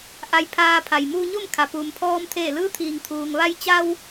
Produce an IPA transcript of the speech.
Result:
ʔa˧jpʰaː˧ pʰa˩jmuː˧ɲo˥˨mkʰa˩ puː˩mpʰɔː˧m t̪ʰeː˧˩lɯː˧˥t̪ʰiː˩ŋt̪ʰuː˩ŋ ʋa˧jt͡ɕa˧w

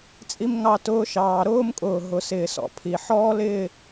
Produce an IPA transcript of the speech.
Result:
t͡sʼi˥mŋɑ˥˧tʊː˥ʃɑː˧ ɾʊː˥mkʼʊː˧˩ ɦʊ˧sɪː˧sɔ̰˥˧pʰi˧˩ ħɔː˥lɪː˥˧

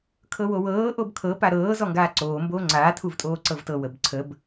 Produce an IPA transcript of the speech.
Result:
kʰɤwowɤː ʔobkʰɤ paɾɤː zɔŋɡaːǀoː mboːŋ͡ǀaː tʰuvtʼoːǀɤvtɤ wəbǀʰəb

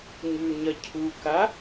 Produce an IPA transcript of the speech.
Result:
ɲʉɲɐ cʰuka

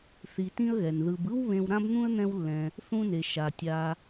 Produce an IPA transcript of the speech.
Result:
θi˨tĩ˦ə̯ɣɛ˩n ðɯ˨b ɯ˥w βẽ˦w ɾã˥bn̪ũ˥ə̯n̪ɛ̃˦wlːɛ̃˨ | θũ˦ne˩ ʃa˩tʲa˨

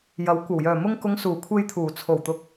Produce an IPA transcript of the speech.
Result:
jɐ˨˥wkʷɐ˨˩w jœː˨˩mʊ˧ŋkʊ˨˧ŋ suː˨˩kʷʰe˧jt̪ʰuː˨˩ t͡sʰo˨˩wt̪ʊ˨˥k̚

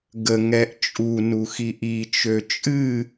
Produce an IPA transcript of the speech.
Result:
ɡəŋɛʔ t͡ʃʼu nuxiʔit͡ʃø t͡ʃʼɨ

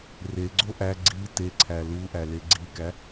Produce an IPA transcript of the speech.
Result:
reɡ͡ǀo ʔæ ɡ͡ǀi te ǀʰæluʔæ leɡ͡ǀikæ

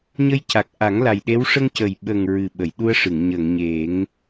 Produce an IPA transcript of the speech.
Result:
ɲə˧jca˨˩k̚ ʔa˨˩˦ŋla˨˩jɗe˧˥w ʂə˧ŋcə˨˩j ɓə˨˩ŋ ɹɨ˨˩ɓə˨˩˨jɗu˧ə̯ʂɨ˨˩˨ŋ ɲə˨˩˨ŋɲe˨˩˦ŋ

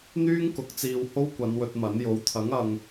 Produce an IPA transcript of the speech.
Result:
n̪yː˥ŋkʊ˨˥k̚ t͡siː˧w ho˥wkʷɐ˨˧n wɵ˧t̚mɐ˨˥n jo˨˥wt̪ʰɐ˨˥ŋ ɐ˨ŋ

